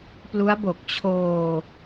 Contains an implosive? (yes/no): no